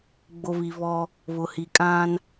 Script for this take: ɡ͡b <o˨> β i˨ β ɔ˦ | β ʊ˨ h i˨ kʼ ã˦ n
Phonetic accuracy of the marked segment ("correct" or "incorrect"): correct